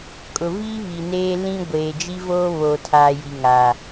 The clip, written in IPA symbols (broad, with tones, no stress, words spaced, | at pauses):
kʼʊ˨viː˦ βi˨neː˦ lĩ˦ ɡʷeː˨d͡ʒi˦ voː˦βoː˨tʰaː˨ ji˨ŋaː˨